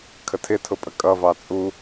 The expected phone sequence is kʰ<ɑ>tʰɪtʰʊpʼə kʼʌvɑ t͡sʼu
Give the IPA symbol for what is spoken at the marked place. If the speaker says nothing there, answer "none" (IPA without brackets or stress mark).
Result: ə